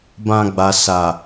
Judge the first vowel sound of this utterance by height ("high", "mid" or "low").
low